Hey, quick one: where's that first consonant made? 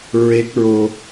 tongue tip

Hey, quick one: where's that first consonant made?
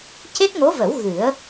palate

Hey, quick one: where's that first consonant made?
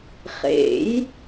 uvula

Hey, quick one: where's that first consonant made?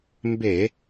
lips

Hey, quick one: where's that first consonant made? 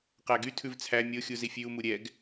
uvula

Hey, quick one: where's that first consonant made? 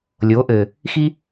tongue tip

